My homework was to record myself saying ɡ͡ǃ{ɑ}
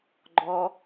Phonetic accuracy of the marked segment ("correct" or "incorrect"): incorrect